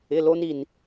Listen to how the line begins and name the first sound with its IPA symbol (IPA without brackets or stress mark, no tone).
ɪ